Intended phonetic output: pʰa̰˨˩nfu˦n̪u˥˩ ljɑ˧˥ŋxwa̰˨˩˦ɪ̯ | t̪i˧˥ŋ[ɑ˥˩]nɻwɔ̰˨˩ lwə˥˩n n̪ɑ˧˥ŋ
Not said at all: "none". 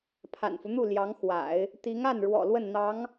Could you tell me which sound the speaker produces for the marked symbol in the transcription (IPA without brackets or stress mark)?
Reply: a˥˩